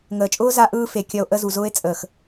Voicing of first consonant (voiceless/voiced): voiced